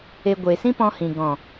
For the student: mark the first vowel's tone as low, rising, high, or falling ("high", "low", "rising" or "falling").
low